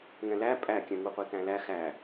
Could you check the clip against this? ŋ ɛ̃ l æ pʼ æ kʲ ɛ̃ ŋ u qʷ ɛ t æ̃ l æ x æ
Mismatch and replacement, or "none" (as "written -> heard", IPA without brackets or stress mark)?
none